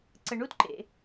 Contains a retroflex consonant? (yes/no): yes